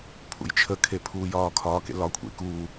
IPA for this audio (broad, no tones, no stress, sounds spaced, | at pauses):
pʰ ṵ j t͡ʃʰ ə kʰ e pʰ uː j ɒː kʰ ɒː k ḛ l ɒ kʷʰ ḛ k uː